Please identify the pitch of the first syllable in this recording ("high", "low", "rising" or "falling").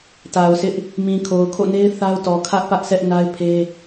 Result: low